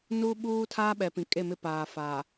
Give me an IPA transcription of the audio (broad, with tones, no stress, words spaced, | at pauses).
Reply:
nuː˦ɓuː˦tʰaː˦ɓɛ˨ pĩ˨kʼe˦˨mɪ˦paː˨ fa˨